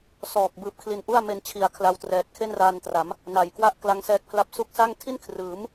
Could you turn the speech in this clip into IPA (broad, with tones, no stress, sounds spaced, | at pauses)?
s ɔː˨˩ k̚ b ɯː˨˩ p̚ kʰ l i˧ n ʔ u˥˩ a̯ m e˧ n t͡ɕʰ i˩˦ a̯ kʰ l a˧ w t r ɛː˨˩ t̚ kʰ e˥˩ n r aː˧ n t r a˩˦ m | n a˨˩ j k w a˥˩ ʔ k l a˦˥ ŋ s ɛː˦˥ k̚ pʰ l a˦˥ p̚ s u˦˥ k̚ s a˥˩ ŋ tʰ i˥˩ n kʰ r ɯː˩˦ m